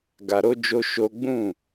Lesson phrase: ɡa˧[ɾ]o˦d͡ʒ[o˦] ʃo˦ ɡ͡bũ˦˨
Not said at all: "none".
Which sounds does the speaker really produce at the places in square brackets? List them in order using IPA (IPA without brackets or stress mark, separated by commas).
ɾ, o˦